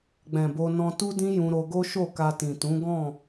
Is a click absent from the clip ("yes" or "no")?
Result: yes